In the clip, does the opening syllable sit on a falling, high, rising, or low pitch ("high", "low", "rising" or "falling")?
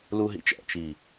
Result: high